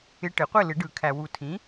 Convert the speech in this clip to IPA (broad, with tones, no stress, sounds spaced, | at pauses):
ɪ˨ ʈ ɪ˨˩˦ qʷ ɪ˥˨ l ɪ˨˩˦ ɖ ɯ˨˩˦ kʰ æ˨ w u˨ tʰ ĩ˨˥